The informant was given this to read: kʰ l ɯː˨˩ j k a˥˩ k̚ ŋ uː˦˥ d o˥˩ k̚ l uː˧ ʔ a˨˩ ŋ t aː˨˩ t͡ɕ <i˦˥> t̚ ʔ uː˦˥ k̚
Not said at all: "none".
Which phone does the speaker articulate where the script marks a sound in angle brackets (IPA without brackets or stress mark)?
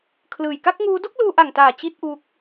i˦˥